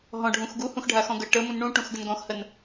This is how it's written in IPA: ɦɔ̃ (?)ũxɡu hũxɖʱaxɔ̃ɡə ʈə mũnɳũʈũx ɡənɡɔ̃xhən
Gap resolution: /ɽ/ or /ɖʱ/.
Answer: ɖʱ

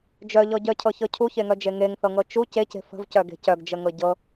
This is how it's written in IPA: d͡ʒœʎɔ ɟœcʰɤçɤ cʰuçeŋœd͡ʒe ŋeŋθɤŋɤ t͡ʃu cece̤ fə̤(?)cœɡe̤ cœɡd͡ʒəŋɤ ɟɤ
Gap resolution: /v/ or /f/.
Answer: v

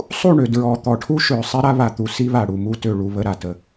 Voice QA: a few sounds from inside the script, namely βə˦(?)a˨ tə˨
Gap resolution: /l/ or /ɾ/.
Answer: ɾ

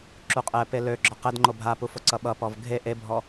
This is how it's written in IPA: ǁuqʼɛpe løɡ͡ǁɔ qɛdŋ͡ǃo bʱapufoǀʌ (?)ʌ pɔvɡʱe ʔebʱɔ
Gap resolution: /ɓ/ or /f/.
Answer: ɓ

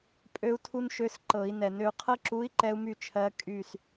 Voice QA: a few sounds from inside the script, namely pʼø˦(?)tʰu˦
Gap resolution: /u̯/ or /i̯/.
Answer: u̯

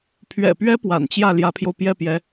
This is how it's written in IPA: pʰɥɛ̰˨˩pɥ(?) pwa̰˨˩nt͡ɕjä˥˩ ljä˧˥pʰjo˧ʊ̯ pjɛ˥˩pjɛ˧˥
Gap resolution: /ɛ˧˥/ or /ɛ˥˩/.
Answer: ɛ˧˥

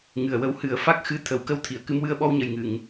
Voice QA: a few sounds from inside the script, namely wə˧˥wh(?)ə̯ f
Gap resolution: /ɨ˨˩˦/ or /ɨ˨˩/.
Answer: ɨ˨˩˦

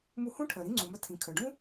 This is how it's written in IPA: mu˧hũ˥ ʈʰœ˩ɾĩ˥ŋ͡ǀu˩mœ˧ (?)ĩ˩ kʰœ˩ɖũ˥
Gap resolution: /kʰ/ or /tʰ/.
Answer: tʰ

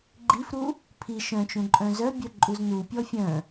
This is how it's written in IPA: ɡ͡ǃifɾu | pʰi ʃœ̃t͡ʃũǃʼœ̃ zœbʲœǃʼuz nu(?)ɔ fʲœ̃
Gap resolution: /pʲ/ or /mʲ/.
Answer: pʲ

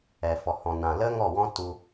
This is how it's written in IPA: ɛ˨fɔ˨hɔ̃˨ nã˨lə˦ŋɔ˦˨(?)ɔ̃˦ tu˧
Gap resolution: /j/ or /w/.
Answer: w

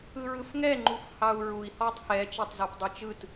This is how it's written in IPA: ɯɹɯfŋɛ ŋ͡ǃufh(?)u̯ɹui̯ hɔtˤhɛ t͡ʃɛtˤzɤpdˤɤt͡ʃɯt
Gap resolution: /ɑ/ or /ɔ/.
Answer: ɑ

